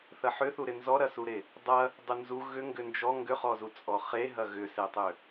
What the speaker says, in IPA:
θɐħʏθuɾɪ nzɔɾɐsuɾe | dˤɐ | dˤʏnzu ɣʏ ŋɡʏnd͡ʒɔ ŋɡʏχɔzu t͡sʼɔχeɦɐ ɣʏsetˤø

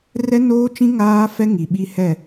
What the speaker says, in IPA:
rɛ˦noː˦t͡ʃĩ˦ ŋaː˦fɛ˦ ŋi˨ɓi˦hɛ˦˨

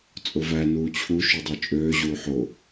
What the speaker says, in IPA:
t͡sʼovæ nuːt͡ɕʰu ʃudˤot͡ʃʼøː ʑuːħo

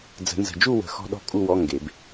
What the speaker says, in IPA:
d͡zə̤˨˩˦nzə̤˨d͡ʒu˥˧wə̤˨˩˦ xɔ̤˦˥ɗɔ̤˥˧kʼu˥˧wɔ˧˥˧ ŋɡe˨˩˦b

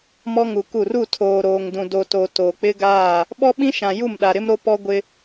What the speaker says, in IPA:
mɔ˦ŋu˨ku˦˨r u˦˨tʰoː˨ ɾoː˨ŋdũ˨ do˨to˨ to˨ k͡pɪ˦ɡaː˦˨ | ɓɔ˦ɓĩ˦ ʃã˨ ju˦˨mɗa˨ɾɪ˦m ɾo˦pɔ˦ɡʷɪ˦

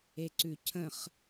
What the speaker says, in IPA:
eǀʉcʰə̃χ

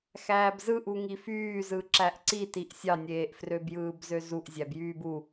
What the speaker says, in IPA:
xæːbzɯʔu ŋifyːzɯ ǁæʔǀitiʔ sʲɑnʲeːʔ frøbjɯːbzøzuʔ zʲæbjyːbu

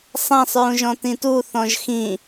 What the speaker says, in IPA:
sˤãsˤɹũʒɔ̃ tĩtu θɔ̃ʒxĩ

